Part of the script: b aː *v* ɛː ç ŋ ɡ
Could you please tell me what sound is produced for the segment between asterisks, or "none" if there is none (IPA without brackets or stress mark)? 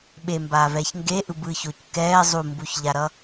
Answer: v